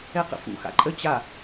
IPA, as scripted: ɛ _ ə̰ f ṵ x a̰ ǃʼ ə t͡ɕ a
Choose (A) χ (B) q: B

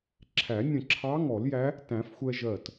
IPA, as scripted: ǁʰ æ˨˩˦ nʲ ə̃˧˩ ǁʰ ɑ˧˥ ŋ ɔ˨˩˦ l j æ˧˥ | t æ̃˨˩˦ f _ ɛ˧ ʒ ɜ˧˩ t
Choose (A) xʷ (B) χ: A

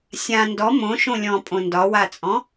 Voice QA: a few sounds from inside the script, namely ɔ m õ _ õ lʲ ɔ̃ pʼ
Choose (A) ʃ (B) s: A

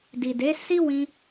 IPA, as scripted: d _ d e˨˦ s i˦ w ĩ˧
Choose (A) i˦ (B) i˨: B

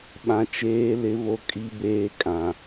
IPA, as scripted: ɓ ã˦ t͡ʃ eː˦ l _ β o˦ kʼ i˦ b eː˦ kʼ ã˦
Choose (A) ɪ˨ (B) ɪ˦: B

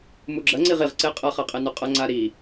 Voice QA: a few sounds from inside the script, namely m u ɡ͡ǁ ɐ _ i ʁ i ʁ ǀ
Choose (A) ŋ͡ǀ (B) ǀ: A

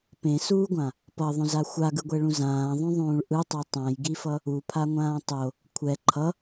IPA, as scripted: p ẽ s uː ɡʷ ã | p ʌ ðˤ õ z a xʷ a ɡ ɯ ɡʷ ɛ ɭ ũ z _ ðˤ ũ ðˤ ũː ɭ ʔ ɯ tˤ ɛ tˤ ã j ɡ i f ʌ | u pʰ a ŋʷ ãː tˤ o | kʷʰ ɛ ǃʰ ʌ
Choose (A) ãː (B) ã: A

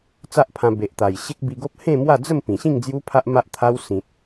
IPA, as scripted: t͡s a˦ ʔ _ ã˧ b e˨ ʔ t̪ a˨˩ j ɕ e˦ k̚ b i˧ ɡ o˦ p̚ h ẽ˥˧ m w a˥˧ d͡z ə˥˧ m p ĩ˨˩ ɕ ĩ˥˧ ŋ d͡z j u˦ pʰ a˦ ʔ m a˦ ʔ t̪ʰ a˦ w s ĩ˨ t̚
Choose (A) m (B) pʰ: B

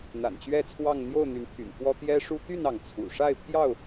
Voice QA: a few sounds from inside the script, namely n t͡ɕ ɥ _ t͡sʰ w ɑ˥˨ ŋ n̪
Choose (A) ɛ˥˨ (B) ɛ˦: A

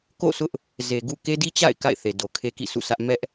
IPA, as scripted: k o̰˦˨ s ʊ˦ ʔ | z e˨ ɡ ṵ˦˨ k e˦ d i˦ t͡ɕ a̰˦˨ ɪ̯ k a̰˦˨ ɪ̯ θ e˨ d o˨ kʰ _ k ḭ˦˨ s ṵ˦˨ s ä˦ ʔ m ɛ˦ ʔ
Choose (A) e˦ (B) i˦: A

